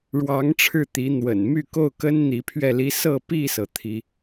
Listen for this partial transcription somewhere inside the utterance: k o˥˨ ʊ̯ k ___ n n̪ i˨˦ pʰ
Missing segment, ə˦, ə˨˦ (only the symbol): ə˦